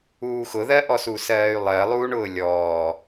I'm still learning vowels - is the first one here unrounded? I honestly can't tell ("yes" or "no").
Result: no